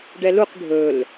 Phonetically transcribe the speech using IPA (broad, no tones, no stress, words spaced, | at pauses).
ɖɛluq ɖʱɵl